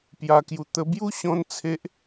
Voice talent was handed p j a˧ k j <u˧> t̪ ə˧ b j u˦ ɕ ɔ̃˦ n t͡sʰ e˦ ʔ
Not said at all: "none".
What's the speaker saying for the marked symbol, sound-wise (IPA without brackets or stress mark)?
u˧